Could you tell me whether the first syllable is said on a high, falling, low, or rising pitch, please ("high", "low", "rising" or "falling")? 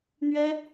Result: high